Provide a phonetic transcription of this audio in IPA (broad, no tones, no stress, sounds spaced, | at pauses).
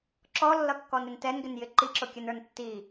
ǁ ɔ lː ʌ kː ɔ n ɾ ɪ n t ɛ n ɡ ɪ n j ɪ ǃ i ǁ ʊ kʲ ə n ə˞ n tː i